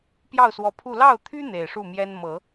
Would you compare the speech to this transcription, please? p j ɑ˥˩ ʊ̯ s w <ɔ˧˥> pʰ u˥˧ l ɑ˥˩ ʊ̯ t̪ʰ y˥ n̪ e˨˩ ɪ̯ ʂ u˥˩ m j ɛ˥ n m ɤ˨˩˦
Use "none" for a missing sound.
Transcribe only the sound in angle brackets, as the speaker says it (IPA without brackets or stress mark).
ɔ˧˥